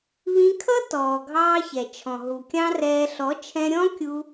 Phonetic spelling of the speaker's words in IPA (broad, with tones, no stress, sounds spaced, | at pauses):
β ĩ˧ kʰ ʌ˦ t ɔː˨ ɡʱ ɑː˦ ç ɛ˨ t͡ʃʰ ɔ̃˨ ɦ u˨ kʲ ɑ̃˦ r ɛː˧ ɬ ɔ˨˦ t͡ʃʰ ɛ̃˧ ɾʲ ɔ̃˦ kʲ u˧